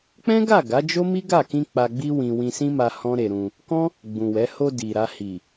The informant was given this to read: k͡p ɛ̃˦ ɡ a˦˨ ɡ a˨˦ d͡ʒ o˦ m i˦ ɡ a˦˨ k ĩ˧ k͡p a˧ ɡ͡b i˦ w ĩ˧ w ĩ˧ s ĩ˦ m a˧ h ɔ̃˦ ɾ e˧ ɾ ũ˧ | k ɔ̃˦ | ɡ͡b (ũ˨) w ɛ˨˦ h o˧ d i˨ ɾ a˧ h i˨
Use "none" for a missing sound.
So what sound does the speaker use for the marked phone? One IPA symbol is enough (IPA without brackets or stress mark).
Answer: ũ˨